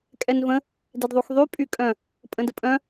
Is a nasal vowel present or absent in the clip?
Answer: present